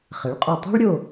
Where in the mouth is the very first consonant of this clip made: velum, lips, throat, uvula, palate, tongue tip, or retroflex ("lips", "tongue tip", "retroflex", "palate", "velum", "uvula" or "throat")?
uvula